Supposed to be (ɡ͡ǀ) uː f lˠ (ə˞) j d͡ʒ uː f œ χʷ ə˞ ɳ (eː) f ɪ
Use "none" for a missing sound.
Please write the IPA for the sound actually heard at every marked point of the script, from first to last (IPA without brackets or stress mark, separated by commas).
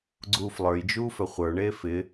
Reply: ɡ͡ǀ, ə˞, eː